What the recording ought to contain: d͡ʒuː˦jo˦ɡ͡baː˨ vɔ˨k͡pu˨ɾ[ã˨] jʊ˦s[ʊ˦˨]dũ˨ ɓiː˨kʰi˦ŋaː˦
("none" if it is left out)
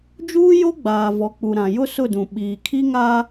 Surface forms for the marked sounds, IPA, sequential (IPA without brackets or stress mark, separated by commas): ã˨, ʊ˦˨